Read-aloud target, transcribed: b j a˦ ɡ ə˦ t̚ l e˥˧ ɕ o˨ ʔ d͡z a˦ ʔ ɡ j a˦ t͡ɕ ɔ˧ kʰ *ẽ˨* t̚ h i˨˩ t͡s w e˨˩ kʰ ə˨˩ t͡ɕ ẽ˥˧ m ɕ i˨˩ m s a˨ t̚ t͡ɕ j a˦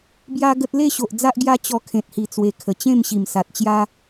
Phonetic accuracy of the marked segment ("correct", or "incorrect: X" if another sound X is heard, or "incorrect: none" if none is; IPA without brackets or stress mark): correct